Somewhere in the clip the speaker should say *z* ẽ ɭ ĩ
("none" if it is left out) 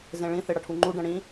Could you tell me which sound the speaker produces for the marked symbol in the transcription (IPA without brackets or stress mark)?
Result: z